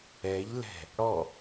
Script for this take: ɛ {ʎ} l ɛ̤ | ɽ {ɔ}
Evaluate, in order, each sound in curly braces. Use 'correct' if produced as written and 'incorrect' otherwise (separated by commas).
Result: correct, correct